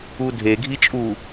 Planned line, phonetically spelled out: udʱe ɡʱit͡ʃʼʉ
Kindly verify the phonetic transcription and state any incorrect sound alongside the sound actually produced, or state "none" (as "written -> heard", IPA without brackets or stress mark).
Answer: ʉ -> u